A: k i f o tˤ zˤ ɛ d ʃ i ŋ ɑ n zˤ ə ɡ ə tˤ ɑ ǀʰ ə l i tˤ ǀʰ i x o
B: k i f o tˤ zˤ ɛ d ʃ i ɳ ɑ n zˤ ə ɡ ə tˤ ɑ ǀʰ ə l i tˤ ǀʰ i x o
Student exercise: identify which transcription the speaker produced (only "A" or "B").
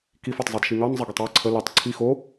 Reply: A